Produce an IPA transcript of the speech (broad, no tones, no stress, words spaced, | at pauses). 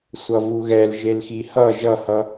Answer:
sʷʌvuɣɛl ʒelxihʌ ʒʌhʌ